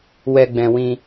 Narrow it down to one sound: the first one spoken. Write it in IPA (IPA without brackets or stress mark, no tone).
w